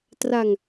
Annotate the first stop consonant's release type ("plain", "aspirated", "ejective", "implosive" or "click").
plain